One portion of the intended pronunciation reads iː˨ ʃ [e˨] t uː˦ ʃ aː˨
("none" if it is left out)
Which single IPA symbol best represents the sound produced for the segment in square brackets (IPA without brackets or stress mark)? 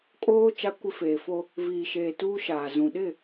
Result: eː˨